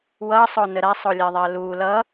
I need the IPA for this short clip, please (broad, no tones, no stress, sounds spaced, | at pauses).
w ʌ sˤ o n ə ɾ a sˤ o lʲ ɜ ðˤ ɜ l u l ʌ